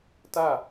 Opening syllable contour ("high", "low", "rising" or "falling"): falling